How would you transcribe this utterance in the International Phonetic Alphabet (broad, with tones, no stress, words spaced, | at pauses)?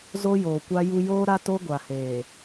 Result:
zo˦joː˨kʷa˦ju˦ joː˦ɾa˦to˦ ɡʷa˨heː˨